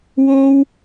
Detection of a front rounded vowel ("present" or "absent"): absent